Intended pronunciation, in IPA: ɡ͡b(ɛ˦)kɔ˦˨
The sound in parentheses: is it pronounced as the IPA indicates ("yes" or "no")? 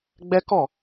yes